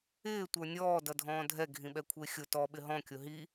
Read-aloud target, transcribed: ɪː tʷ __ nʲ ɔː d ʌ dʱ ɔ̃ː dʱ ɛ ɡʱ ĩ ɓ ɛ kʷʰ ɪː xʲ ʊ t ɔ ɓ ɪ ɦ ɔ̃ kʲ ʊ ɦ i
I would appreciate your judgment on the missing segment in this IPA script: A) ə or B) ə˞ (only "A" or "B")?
B